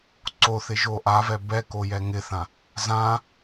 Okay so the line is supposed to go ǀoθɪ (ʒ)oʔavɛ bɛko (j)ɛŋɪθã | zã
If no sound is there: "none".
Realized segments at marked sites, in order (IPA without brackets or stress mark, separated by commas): ʒ, j